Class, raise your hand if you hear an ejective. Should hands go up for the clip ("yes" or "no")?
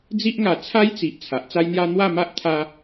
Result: no